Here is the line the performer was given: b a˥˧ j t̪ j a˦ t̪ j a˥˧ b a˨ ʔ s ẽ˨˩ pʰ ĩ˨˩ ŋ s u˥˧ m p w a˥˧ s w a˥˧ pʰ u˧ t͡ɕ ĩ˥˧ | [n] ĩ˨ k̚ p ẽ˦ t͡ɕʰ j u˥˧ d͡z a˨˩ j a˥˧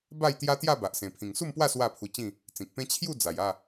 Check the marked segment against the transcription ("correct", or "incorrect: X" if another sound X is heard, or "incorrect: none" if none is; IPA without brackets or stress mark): incorrect: t͡s